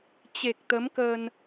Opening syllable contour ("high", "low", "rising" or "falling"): low